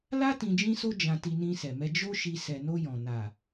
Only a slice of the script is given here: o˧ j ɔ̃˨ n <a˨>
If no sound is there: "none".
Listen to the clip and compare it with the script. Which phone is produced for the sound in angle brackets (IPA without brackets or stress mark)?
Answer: a˨